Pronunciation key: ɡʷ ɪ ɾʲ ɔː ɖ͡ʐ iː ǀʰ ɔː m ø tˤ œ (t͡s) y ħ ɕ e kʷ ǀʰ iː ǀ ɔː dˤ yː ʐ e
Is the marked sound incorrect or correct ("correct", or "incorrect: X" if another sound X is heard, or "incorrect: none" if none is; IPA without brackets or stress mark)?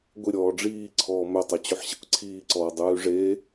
incorrect: t͡ɕ